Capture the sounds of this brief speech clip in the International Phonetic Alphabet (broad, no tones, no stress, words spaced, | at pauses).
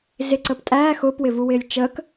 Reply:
zɪǀəːp tʼæː xʊːpwɪvuwɪːlʲ t͡ʃəːk